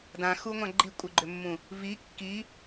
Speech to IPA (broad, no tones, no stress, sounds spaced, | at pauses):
d ã x u ŋʷ ã ɡ͡ǃ i kʷʼ ɨ ɡ͡ǃ ʏ mː ũ | v i kː i